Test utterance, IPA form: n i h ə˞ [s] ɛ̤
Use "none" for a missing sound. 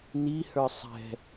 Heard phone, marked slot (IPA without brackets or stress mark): sˤ